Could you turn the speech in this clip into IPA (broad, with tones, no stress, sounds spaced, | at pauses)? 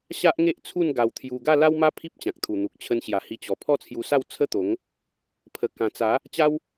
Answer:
ɕ a˦ ʔ ŋ e˦ ʔ t͡sʰ u˥˧ n ɡ a˧ w t̪ʰ j u˧ ɡ a˥˧ l a˦ w m a˦ pʰ i˦ p̚ t͡ɕ ã˨ k̚ t̪ʰ u˨˩ n̪ u˨ k̚ t͡ɕʰ ə˧ n ɕ j a˨˩ h i˧ t͡ɕ ɔ˨˩ pʰ ɔ˦ t͡sʰ j u˧ s a˥˧ w t͡sʰ ə˦ t̪ o˨˦ ŋ | pʰ ə˨˩ k ã˨˩ t͡s a˨˦ | t͡ɕ a˦ w